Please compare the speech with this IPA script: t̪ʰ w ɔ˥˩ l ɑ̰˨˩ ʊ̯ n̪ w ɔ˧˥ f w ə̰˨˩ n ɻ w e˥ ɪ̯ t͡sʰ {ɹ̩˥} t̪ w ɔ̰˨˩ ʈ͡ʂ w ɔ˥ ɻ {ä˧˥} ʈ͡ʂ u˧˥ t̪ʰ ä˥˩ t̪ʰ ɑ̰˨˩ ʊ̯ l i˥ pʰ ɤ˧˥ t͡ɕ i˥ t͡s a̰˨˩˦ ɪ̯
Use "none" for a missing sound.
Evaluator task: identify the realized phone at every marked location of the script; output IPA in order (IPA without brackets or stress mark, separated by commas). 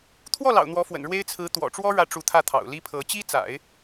ɹ̩˧˥, ä˧˥